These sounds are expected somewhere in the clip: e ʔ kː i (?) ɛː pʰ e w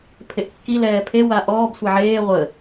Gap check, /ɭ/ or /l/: l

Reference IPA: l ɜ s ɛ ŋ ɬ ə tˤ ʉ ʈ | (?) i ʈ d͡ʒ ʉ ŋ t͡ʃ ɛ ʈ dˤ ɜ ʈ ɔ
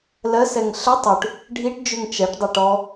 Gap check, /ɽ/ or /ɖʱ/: ɖʱ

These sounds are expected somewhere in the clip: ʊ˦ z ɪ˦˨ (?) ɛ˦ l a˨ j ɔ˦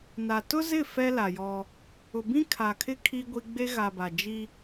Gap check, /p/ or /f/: f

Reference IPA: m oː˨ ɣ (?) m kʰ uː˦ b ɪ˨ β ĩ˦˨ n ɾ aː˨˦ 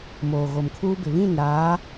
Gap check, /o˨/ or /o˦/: o˨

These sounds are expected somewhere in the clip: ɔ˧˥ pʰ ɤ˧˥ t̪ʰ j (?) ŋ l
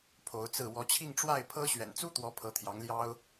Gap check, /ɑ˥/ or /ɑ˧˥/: ɑ˧˥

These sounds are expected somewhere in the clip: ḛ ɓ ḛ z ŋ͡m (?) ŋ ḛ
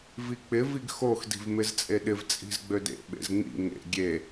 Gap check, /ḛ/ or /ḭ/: ḭ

